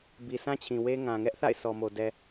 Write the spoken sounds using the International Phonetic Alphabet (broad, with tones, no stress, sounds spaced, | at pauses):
b i˨ sʰ ã˦ t͡ɕʰ ĩ˨ w e˦ ŋ ã˨ ŋ ɛ˦ ʔ θ a̰˦˨ ɪ̯ sʰ ɔ˨ m o˨ d ɛ˨